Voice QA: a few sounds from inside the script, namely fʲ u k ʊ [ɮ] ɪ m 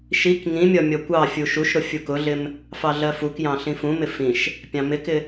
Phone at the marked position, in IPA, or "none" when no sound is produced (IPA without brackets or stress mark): ɮ